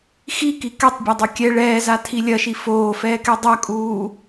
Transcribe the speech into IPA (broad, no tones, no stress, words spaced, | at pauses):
xiki kɛtˤbʲadˤu kʲɛ ɭɛːzatʰi lʲɐʃi foːfɛːkɛ dˤɐkʼuː